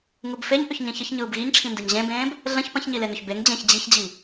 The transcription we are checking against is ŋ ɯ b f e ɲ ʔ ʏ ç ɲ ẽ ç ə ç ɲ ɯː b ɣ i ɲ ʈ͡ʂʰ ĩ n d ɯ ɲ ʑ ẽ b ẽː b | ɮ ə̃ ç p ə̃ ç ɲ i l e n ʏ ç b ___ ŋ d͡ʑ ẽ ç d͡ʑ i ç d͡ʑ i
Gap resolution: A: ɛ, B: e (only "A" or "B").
B